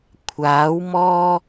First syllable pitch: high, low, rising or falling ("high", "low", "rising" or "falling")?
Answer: rising